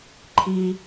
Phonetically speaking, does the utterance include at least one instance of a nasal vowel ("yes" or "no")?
no